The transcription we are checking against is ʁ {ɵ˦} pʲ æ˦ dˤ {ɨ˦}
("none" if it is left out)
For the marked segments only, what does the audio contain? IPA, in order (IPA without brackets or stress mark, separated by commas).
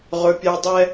ɵ˦, ɛ˦